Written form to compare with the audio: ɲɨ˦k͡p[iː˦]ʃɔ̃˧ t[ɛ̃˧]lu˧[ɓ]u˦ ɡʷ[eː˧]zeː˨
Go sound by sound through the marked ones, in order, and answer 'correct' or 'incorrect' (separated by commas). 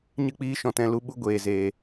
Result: correct, correct, correct, incorrect